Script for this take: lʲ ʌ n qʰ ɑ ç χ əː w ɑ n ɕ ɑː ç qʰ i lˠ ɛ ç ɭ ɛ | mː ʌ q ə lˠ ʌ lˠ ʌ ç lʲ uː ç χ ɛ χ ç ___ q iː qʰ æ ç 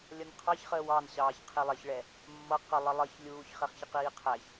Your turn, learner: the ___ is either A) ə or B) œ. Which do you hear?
A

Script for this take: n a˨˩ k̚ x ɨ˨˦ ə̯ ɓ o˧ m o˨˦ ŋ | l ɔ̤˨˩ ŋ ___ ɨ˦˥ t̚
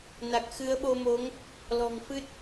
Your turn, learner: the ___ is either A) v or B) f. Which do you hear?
B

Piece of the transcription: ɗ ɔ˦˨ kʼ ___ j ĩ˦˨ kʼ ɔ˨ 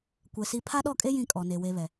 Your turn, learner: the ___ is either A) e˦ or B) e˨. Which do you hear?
A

